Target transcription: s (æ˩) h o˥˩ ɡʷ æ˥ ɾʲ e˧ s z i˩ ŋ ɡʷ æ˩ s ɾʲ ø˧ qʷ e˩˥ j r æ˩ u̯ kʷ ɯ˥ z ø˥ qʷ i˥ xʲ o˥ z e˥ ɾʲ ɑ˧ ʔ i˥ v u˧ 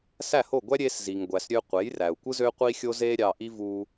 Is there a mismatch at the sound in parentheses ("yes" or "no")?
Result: yes